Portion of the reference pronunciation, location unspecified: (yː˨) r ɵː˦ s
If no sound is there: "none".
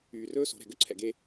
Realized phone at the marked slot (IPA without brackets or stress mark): yː˨